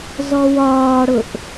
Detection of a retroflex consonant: present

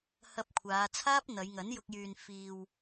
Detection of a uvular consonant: absent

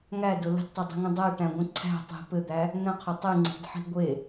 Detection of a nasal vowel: present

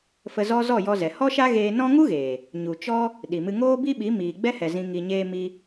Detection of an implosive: present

